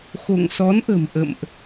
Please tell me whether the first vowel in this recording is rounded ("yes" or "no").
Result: yes